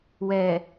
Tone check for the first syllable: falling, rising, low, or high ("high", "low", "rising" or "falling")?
low